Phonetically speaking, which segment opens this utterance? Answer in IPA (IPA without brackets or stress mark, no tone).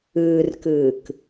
ɨː